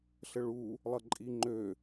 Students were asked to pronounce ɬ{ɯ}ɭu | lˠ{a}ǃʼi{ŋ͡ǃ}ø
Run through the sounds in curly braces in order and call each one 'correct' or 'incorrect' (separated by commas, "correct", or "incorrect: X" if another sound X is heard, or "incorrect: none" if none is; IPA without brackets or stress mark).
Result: incorrect: ə, incorrect: ʌ, correct